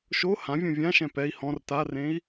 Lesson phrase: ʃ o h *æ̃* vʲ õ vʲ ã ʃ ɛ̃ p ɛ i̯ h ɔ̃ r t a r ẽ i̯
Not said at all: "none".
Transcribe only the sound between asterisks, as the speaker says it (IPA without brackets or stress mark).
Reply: ã